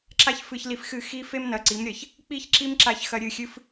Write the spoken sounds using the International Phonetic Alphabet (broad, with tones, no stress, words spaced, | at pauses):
ǁa˦çfɨ˧çli˧fxɨ˦˨ xi˧fe˦m nɐ˧ǀi˨˦m ɾʲɐ˨ç | k͡pi˦çǁi˦mǁa˧çxɐ˧ ɾʲɨ˦˨xʲɨ˦f